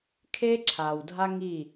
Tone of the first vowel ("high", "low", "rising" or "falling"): high